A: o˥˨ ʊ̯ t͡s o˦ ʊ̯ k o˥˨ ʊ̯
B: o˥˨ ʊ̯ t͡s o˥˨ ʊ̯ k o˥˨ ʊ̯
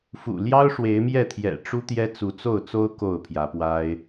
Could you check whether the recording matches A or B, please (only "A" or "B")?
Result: A